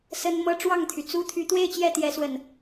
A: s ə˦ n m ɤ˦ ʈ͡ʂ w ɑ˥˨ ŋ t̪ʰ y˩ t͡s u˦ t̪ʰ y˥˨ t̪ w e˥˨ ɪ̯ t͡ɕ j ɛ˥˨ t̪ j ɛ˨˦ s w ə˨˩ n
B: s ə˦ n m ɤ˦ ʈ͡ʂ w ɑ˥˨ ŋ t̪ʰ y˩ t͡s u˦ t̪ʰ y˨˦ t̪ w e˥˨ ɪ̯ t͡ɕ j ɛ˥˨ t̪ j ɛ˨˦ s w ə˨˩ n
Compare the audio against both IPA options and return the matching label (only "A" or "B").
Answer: B